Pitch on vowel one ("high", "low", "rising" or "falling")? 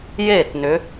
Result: falling